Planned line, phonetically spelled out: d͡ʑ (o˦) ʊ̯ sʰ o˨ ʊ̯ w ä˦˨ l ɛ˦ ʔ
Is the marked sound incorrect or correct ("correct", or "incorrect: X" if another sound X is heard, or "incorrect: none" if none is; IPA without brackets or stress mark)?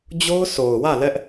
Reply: correct